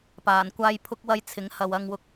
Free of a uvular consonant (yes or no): yes